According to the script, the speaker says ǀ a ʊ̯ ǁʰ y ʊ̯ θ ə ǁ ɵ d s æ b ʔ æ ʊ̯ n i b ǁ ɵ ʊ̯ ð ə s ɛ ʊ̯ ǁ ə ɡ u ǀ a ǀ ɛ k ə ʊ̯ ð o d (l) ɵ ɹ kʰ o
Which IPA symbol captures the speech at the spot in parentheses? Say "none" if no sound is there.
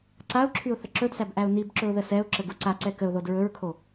ɹ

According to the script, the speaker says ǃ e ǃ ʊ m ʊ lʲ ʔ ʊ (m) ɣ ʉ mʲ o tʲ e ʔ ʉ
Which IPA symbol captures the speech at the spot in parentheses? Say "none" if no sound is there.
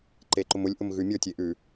m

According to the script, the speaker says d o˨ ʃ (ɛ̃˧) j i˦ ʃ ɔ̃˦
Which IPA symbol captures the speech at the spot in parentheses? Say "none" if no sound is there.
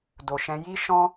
ɛ̃˧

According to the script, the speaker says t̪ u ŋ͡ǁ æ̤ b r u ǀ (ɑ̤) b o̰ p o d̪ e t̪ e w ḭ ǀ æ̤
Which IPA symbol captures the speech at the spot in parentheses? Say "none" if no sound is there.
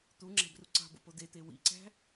ɑ̤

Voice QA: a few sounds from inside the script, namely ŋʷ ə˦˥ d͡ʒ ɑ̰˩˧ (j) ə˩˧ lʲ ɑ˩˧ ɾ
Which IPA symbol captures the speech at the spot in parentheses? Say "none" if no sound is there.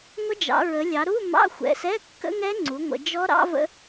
ɹ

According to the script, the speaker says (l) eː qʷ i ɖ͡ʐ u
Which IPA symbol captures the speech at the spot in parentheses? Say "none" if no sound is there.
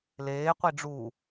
l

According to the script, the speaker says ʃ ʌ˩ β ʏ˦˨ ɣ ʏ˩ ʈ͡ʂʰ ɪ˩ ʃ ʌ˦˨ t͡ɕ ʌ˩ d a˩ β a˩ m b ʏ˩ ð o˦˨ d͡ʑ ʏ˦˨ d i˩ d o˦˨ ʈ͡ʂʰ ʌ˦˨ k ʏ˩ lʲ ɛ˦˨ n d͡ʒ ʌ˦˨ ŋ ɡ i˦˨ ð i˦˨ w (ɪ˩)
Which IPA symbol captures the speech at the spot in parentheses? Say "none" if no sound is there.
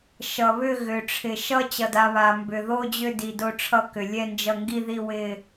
ɪ˦˨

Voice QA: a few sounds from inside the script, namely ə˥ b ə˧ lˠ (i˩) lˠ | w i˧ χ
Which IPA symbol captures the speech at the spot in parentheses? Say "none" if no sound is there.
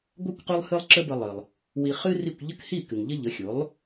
ɨ˩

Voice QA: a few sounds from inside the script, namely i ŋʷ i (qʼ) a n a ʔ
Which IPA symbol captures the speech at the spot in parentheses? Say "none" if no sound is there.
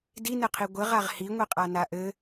qʼ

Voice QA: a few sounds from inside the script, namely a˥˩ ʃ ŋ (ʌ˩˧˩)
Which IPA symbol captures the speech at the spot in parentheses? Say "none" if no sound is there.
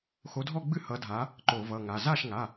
a˩˧˩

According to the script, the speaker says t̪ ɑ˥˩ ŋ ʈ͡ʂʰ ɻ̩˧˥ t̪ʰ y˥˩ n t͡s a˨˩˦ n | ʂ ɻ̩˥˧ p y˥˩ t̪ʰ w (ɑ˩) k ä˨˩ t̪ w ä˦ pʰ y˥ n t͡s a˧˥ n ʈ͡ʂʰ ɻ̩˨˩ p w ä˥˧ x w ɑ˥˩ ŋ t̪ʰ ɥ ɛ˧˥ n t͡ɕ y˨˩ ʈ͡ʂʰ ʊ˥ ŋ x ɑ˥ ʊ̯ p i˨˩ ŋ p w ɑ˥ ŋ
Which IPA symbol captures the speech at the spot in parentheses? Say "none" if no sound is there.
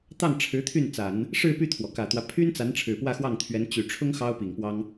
ɔ˩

